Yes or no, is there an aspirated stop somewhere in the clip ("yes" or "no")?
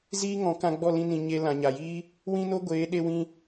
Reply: no